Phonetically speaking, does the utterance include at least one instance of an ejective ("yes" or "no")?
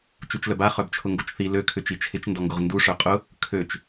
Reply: yes